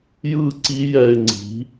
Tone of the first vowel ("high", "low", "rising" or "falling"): falling